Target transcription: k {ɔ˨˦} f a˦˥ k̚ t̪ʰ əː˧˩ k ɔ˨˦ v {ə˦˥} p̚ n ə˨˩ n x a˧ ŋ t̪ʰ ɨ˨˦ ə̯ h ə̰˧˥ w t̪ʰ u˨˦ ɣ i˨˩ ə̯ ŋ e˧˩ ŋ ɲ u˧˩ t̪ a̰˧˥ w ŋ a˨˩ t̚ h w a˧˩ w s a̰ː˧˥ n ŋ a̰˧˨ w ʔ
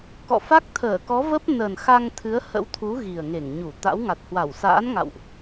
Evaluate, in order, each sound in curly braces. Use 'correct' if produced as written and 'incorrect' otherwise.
incorrect: ɔ̰˧˨, correct

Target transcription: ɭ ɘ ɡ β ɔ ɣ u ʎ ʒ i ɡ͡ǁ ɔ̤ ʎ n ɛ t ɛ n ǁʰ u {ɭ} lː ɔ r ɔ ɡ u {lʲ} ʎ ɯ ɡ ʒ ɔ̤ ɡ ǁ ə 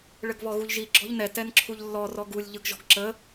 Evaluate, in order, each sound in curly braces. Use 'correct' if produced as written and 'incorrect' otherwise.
incorrect: ʎ, correct

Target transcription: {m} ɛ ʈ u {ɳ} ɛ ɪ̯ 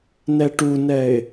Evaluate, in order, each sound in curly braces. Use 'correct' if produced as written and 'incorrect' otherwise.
incorrect: n, incorrect: n

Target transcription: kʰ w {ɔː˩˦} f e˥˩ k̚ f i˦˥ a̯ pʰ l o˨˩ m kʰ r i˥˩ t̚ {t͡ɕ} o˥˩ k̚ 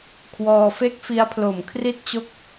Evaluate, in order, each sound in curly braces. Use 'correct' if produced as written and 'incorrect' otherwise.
incorrect: ɔː˧, correct

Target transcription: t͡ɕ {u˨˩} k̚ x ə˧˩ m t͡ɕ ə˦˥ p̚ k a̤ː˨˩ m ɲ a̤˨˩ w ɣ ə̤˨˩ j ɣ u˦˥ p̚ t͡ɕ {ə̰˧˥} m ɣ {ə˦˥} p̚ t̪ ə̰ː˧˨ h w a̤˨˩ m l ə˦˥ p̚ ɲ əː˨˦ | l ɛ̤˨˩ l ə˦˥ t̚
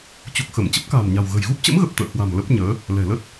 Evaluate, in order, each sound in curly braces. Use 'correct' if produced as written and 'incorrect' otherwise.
correct, correct, incorrect: ə˨˩

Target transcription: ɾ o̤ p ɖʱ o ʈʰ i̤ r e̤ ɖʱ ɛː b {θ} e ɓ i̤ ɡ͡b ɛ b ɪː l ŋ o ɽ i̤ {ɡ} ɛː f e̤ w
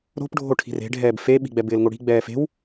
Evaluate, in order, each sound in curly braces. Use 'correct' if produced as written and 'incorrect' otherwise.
incorrect: f, incorrect: ɡ͡b

